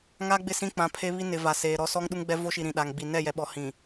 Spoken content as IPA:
ŋ a˦ ɡ͡b ɪ˦˨ s ĩ˦ k͡p ã˨˦ pʰ e˦ β i˦ n ɪ˨ v a˨ s eː˨ ɾ ɔ˦ s ɔ˦ ŋ ɗ u˦ ŋ ɡ͡b ɛ˦ v o˦ ʃ i˨ ɾ ĩ˨ ɗ a˨ ŋ ɡ͡b i˨ n ɛ˦˨ j ɛ˨ ɓ ɔ˨ h ĩ˨

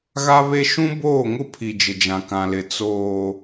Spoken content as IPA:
ɣ a˦ β e˦ ʃ ũ˦ b oː˦˨ ŋ ʊ˦ pʰ i˨ d͡ʒ ɪ˨ d͡ʒ ã˨ k ã˨ l ɪ˨ t͡s oː˨

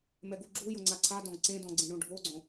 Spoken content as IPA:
m ɛ ɡ u ɡ͡ǁ u j ʊ ŋ͡ǀ a ǀʰ a d ɔ̃ ɡ ǀ ẽ d ɔ̃ ɡ͡ǀ ẽ ɳ õ ɖʱ o ɡ͡ǀ õ

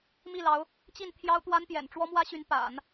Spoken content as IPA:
m i˥˩ l ɑ˧˥ ʊ̯ | t͡ɕ i˥˩ n t̪ʰ j ɑ˥ ʊ̯ t̪ w a˥ n p j ɛ̰˨˩ n ʈ͡ʂ w ɔ˥ m w ä˥ ɕ y˧˥ n p a̰˨˩˦ n

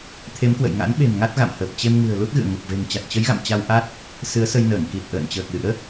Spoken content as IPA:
t̪ʰ e˨˦ m k w ə̰˧˨ j ŋ a̰˧˥ n ɓ e̤˨˩ m ŋ a˦˥ t̚ ɣ a̰˧˨ m h əː˨˩ p̚ t͡ɕ e˧ m ŋ ɨ̤˨˩ ə̯ l u˦˥ t̚ ɣ ɨ̰˧˨ ə̯ ŋ u˨˩ k̚ v e̤˨˩ ŋ t͡ɕ a˨˩ t̚ t͡ɕ ə˨˦ j ɣ a̰˧˨ m t͡ɕ a˧ w ʔ a˦˥ t̚ | s ɨ˨˦ ə̯ s ə˧ j n əː˧˩ ŋ k i˨˩ t̚ ʔ ə̰ː˧˨ n t͡ɕ əː˨˩ k̚ l ɨ̰˧˥ ə̯

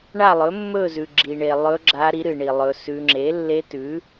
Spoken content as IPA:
ɳ a˥˧ lˠ ɵ˨˥ mː ɵ˥˧ z ʉ˨ ɡ͡ǁ i˨ ɳ e˨ lˠ ɵ˦˥ ɡ͡ǁ a˦˥ ɾ i˨˥ ɾ ɨ˨ ɳ i˨ lˠ ɵ˦˥ s ʉ˦˥ ŋ͡ǁ e˨˥ lː e˦˥ t ʉ˨˥

